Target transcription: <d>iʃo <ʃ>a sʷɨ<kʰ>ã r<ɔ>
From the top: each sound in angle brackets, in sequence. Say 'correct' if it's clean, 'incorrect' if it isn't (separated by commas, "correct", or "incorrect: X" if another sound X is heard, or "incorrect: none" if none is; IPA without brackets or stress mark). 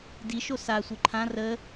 correct, incorrect: s, incorrect: ǃʰ, incorrect: ə